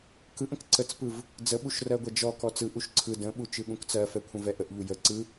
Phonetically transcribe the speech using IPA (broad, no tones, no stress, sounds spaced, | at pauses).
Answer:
k ɯ ʔ ə̃ k ǀ ə t͡s p ɯ v | d͡z ə ɓ u ʃ r ɜ ɡʷ ɛ d͡ʒ ɔ k ɔ t͡s ɯ ʔ u ʃ ǀʰ ɯ d ə̃ ɓ u t͡ʃ ɯ ɠ ũ k t͡s ɜ f ɛ kʷʰ ə̃ v ɛ ʔ ə ʔ ʎ u j ə ǀ ɯ